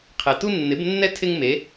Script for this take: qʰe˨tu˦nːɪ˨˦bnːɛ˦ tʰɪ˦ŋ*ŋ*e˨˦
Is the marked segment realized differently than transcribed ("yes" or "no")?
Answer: yes